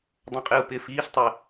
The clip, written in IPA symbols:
dˤ ɐ̃ qʼ ɪː u̯ p ɪː f iː ɬ tˤ ɪ

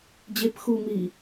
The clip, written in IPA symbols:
d͡ʑ e p x uː m iː

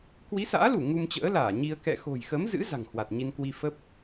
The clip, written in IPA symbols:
k w i˨˦ s a̰ː˧˥ l u˧˩ ŋ u˧ m t͡ɕ ə̰ː˧˥ l aː˧˩ ɲ i˧ ə̯ k ɛ̰˧˨ x o̤˨˩ j x ə˨˦ m z ɨ̰˧˥ z a̤˨˩ ŋ h w a˨˩ t̚ ɲ i˧ n k w i˧ f ə˦˥ p̚

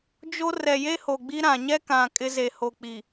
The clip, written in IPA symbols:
d͡ʒ o˦ r ɛ˨ j e˦ h o˨ ɡ͡b i˦ ɾ ã˨ ɲ ɛ˦ k ã˨ kʼ ɪ˦ z e˨ h o˨ k͡p i˨

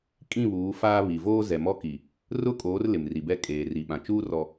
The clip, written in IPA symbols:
kʼ ĩ˦˨ β uː˨˦ f aː˦ β i˨ v oː˦ z ɛ˨ m ɔ˦ k i˨ | r ʊ˦ kʼ oː˨˦ r l ɪ˨ m r i˨ b ɛ˦ kʼ eː˨ r i˨ ɓ ã˨ t͡ʃ uː˦ r ɔ˨

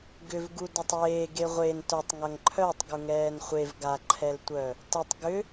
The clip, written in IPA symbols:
ɡ ʏ v ɡ u d œ tˤ eː ɡ e ʁʷ e n t œ tˤ ŋ ɐ ŋ ǃʰ œ tˤ ɡ u ŋ ɛː n χʷ e v ɡ a ǃʰ ɛ l tʷ œ | t ə tˤ ɡ ʏ

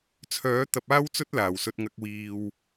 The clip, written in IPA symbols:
t͡sʰ œː˨˥ t̪ ɐ˧ p̚ aː˥ w t͡s ɵ˥ t̚ l aː˨ w s ɵ˧ t̚ ŋ ɐ˧ k̚ w iː˨ w

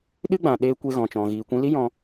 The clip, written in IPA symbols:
ɗ ɨ˦ ɡ͡b ã˨ ɗ eː˧ kʷ e˧ ɣ ɔ̃˨ t͡ʃ ɔ̃˨ ɣ iː˨ kʷ ĩ˧ l i˦ j ɔ̃˧

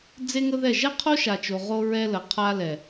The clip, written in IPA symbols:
d͡z e˦ ŋ ə˦ ð ɛ˦˨ ʒ ɛ˦ qʰ o˦ ʃ a˨ t͡ʃ o˨ ʁ o˦ ɹ ɛ˦ l ə˨ qʰ a˦ l ɛ˨

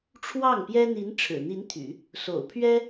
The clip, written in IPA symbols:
ʈ͡ʂʰ w ɑ˥˩ ŋ p j ɛ˥ n̪ i˧˥ n ʈ͡ʂʰ ɻ̩˨˩ n̪ i˧˥ n t̪ʰ y̰˨˩˦ | s o̰˨˩ ʊ̯ pʰ ɥ ɛ˥

